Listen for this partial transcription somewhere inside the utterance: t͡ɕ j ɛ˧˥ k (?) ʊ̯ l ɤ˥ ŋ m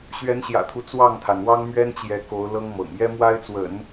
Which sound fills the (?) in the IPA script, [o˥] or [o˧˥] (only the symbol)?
o˧˥